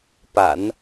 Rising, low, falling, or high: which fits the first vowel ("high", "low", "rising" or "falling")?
low